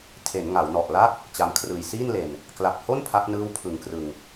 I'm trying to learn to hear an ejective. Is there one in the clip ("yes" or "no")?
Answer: no